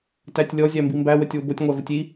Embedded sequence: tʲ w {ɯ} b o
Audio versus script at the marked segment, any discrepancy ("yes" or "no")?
yes